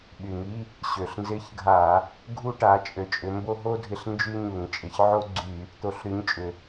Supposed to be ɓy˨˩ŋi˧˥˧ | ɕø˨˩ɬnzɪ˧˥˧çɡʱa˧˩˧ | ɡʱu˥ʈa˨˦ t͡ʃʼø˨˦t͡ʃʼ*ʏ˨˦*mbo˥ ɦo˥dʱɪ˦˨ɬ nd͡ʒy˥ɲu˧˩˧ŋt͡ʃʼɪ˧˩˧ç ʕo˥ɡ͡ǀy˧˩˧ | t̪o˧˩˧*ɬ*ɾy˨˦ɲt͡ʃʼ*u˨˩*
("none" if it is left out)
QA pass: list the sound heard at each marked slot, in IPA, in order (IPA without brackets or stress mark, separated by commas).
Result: ʏ˨˦, ɬ, ʏ˨˩